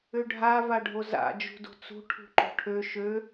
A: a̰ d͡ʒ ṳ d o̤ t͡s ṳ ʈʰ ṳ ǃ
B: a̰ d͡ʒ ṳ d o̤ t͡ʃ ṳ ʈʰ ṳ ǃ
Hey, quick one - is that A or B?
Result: A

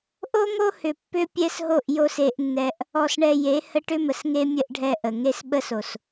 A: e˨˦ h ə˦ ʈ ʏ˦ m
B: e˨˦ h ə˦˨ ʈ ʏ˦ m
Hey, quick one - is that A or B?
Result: A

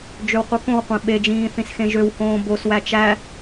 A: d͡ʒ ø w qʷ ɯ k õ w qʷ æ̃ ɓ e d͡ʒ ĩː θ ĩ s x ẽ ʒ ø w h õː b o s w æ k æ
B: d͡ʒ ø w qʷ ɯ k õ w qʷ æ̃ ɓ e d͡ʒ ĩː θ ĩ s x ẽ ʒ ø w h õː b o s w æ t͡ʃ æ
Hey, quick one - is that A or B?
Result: B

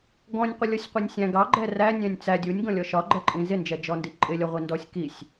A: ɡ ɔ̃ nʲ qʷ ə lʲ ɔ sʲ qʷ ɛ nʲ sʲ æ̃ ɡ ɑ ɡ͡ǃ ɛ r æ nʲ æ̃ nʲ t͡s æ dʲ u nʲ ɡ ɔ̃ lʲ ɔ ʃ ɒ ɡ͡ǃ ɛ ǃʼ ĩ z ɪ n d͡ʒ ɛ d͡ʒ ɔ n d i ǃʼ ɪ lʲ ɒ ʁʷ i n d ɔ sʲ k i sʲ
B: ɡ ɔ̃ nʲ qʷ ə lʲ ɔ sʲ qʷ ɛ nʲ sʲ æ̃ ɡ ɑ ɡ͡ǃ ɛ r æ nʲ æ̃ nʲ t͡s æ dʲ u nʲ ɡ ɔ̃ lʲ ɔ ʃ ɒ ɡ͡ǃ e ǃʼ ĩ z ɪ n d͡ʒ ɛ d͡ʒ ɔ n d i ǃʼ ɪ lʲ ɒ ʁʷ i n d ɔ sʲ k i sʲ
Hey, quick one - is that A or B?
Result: A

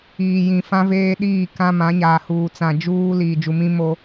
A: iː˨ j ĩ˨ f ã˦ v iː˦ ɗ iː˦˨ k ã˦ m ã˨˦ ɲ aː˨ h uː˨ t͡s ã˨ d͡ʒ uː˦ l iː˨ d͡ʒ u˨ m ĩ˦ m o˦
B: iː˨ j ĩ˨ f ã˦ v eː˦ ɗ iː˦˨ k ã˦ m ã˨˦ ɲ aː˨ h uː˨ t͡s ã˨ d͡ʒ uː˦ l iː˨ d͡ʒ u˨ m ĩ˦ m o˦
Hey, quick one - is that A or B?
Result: B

